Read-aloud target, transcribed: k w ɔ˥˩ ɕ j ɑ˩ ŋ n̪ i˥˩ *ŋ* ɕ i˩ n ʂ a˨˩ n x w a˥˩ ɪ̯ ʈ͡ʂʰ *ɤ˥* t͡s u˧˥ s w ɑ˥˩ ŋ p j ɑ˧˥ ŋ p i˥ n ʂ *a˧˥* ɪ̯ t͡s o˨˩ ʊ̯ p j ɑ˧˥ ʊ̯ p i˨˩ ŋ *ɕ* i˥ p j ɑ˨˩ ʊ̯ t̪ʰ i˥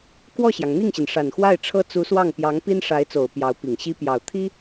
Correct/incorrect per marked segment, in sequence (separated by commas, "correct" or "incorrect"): correct, correct, correct, correct